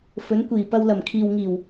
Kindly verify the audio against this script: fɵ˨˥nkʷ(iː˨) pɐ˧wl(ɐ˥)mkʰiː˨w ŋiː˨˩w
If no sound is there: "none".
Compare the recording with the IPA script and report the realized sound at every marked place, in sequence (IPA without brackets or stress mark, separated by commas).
iː˨˩, ɐ˨˩